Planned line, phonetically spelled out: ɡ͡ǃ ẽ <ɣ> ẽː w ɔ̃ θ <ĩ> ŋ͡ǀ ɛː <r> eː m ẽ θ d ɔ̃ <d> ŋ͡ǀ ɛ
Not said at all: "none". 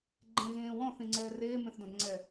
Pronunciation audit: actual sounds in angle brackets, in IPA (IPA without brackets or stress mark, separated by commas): ɣ, ĩ, r, d